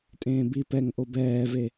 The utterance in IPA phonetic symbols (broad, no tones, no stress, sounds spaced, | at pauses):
tʼ ẽː b i p ɛ ŋ ʔ o b ɛː v e